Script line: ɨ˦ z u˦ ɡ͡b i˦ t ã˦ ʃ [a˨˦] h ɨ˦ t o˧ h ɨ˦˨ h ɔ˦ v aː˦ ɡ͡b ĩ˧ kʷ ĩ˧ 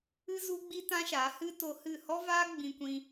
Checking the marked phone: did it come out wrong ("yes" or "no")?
no